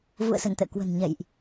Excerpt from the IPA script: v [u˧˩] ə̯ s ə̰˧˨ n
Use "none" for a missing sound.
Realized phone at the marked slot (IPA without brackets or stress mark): ṵ˧˨